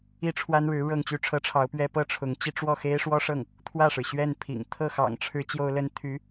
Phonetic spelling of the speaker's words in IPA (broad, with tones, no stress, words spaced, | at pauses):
i˥˩ʈ͡ʂʰwa˥nɻɻ̩˧˥ ɻɤ˥˧ŋt͡ɕy˥˩ʈ͡ʂʰɤ˥ʈ͡ʂʰɑ˧˥ʊ̯ pɥɛ˥ pɤ˥˩ʈ͡ʂʰʊ˧˥ŋt͡ɕi˥˧ ʈ͡ʂwɔ˥˩xe˥ɪ̯ʂwɔ˥ʂɤ˥˩ŋ | t̪ʰwä˥˩ʂɻ̩˩ɕɥɛ˥˩npʰḭ˨˩ŋ t̪ʰɤ˥˩xɑ̰˨˩ŋʈ͡ʂʰɻ̩˧˥ t͡ɕjo˥ʊ̯lə˥n t̪ʰy˧˥